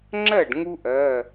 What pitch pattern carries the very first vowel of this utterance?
falling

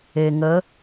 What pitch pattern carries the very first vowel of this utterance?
low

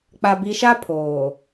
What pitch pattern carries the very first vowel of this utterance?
low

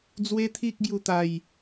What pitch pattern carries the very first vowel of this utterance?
high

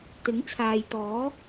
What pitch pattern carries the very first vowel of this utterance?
rising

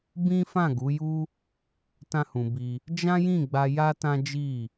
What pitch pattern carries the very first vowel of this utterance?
high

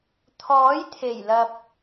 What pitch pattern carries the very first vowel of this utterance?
rising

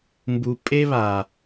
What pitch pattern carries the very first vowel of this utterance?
low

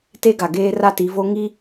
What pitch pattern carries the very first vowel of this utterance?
high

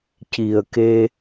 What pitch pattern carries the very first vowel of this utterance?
low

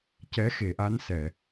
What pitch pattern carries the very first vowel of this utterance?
rising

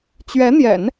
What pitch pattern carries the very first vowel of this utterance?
rising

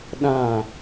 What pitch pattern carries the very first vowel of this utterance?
falling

